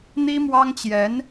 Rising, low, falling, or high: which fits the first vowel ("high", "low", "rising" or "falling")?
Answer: high